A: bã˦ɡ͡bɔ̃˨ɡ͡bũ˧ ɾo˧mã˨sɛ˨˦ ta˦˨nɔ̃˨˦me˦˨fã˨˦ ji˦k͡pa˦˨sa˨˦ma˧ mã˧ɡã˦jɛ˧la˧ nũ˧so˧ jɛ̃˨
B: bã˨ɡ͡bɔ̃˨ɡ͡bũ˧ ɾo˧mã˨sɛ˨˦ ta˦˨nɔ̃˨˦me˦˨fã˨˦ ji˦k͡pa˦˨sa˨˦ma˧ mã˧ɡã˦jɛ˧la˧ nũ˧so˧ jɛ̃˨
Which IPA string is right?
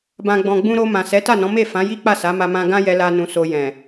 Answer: B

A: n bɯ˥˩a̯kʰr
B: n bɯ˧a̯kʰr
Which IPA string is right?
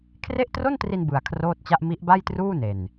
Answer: B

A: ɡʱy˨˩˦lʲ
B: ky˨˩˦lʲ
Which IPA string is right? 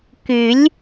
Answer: B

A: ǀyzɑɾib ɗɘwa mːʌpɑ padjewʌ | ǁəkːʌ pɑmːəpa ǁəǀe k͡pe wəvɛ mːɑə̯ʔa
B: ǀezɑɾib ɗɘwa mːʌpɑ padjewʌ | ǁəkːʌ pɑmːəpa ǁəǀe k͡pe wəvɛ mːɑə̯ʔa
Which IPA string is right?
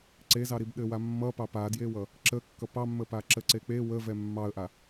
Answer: B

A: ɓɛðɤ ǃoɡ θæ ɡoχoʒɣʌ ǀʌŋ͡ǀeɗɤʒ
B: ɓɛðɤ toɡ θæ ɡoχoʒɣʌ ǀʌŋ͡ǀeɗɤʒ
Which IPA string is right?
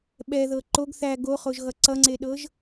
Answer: A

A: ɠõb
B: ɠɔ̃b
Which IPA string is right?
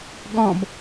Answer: B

